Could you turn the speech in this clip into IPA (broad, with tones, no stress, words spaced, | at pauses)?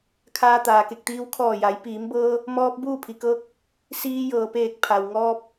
kʰaː˧t̪aː˩ke˧˩k̚t̪iː˧w kʰɔː˧˩ja˩˧j piː˩˧mbɤː˧ | mɔː˧p̚ buː˥˨pʰi˩kɤː˧k̚ | siː˧jɤː˩peː˧˩k̚ pʰa˩wŋɔː˧p̚